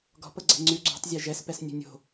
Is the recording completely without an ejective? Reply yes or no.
yes